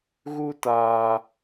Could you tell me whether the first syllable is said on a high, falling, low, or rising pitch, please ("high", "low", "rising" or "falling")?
high